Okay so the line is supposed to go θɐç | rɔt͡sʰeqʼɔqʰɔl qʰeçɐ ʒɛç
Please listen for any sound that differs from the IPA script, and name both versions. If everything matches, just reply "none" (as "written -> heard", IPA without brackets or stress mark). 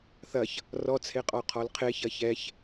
ʒ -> ç